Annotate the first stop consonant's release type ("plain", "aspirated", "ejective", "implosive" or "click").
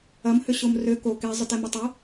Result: plain